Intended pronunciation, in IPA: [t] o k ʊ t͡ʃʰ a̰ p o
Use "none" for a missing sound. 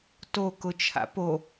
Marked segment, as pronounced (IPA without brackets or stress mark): t